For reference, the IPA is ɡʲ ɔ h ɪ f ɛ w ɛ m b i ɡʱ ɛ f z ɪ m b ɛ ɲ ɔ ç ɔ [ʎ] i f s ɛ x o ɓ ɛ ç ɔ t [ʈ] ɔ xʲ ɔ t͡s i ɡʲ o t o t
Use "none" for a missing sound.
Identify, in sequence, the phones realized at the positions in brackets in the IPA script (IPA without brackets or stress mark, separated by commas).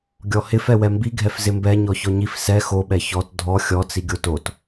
ɲ, dʱ